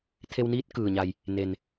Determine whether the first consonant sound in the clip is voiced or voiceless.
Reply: voiceless